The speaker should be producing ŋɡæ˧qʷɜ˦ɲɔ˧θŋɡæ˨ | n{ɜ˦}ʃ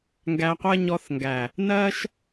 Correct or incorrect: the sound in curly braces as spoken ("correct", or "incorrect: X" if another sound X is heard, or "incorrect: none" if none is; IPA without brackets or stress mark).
correct